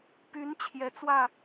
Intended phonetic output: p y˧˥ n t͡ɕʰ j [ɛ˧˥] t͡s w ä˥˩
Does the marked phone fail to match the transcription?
no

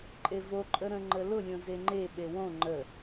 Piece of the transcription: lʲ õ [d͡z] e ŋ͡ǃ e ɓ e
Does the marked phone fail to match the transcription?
yes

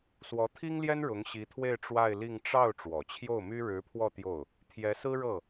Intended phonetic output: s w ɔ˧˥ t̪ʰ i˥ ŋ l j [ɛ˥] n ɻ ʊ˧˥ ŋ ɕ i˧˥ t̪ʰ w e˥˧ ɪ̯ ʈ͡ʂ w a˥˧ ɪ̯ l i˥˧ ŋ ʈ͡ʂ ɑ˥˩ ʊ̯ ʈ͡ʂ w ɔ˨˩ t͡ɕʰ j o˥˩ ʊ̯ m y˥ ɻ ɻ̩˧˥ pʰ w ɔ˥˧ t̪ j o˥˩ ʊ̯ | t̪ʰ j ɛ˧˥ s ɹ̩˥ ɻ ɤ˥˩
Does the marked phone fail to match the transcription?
no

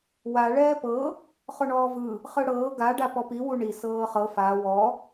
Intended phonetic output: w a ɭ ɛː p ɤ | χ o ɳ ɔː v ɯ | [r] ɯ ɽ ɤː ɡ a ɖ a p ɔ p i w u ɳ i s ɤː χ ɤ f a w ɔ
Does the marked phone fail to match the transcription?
yes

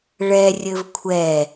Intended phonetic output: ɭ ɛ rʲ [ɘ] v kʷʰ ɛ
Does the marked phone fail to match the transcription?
no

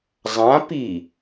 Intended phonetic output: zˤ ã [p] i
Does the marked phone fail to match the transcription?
no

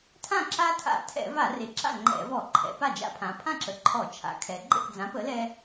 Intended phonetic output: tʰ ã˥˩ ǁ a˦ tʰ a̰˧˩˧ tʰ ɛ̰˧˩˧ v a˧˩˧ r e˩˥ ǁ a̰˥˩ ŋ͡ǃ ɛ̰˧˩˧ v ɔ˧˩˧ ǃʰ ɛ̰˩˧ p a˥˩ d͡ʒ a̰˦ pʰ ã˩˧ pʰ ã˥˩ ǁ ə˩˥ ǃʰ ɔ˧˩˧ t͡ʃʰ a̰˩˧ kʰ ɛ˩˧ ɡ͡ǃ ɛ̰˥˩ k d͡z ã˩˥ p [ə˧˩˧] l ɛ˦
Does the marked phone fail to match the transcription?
yes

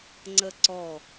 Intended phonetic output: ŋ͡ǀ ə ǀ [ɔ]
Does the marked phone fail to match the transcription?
no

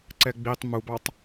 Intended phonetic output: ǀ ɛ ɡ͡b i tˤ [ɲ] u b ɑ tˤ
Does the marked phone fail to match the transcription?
yes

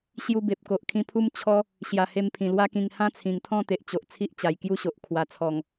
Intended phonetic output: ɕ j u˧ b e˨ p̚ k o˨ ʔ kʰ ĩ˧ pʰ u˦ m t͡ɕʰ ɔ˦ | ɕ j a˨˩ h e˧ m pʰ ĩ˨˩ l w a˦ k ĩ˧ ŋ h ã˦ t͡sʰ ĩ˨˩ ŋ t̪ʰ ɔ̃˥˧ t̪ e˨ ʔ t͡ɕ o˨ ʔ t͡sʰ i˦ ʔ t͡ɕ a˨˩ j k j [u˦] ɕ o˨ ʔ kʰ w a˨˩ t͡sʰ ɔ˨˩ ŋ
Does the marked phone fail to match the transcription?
no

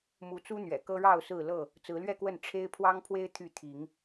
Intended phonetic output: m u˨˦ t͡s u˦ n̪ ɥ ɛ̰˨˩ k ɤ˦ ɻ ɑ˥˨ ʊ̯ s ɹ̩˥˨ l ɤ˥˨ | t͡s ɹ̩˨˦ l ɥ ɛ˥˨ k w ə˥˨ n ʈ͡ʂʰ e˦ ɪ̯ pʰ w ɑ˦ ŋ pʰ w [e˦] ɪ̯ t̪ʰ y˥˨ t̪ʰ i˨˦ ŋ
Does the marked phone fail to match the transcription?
no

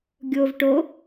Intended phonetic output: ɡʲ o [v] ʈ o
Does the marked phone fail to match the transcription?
no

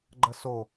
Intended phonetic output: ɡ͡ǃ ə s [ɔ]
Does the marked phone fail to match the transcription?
yes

